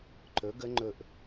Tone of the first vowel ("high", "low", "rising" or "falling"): rising